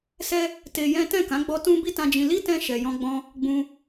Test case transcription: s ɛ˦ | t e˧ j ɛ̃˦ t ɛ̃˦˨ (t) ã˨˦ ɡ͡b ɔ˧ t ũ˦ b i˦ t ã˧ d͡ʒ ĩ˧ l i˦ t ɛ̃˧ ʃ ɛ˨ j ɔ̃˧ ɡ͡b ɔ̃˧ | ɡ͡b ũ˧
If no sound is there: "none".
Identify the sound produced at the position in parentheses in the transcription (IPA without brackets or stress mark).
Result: k